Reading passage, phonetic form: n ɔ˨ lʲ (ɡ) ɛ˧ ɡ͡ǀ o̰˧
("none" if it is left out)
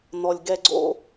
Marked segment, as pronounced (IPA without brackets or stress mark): ɡ